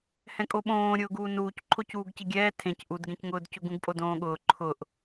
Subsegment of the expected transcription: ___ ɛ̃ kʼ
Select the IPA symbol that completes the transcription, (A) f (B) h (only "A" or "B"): B